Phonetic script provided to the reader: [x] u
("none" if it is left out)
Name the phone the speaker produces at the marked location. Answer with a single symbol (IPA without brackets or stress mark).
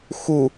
x